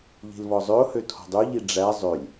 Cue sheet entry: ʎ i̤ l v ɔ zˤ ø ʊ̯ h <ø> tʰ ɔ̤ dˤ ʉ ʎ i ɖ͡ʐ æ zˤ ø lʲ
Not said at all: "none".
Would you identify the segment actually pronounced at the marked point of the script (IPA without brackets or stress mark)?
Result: ø